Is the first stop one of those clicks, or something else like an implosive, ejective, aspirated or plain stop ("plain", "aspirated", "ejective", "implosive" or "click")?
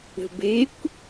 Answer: plain